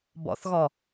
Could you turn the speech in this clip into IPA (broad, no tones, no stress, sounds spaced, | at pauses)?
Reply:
b ɔ̰ θ ɣ ɔ